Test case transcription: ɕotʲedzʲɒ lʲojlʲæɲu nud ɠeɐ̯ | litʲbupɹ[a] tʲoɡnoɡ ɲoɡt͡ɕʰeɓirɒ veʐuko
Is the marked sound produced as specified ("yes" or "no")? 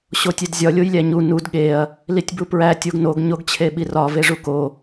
no